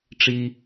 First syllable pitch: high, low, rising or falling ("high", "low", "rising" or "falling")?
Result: low